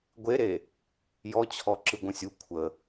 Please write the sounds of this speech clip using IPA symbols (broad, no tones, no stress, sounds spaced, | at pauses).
ɡʷ e ɾ e | j ɔ t͡ɕʰ ɔ ǁ ɯ ɡʷ ə̃ sʲ u kʷʰ ə